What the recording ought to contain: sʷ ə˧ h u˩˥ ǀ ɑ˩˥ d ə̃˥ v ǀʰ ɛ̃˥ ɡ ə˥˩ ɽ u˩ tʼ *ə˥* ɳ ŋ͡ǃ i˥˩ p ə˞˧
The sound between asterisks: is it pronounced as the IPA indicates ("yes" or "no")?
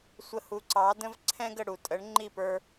no